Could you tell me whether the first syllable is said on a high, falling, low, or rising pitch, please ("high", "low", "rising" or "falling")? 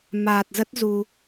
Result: low